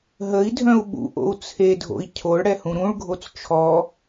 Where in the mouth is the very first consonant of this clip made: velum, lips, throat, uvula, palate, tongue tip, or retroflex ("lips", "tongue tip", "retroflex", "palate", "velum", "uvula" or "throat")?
throat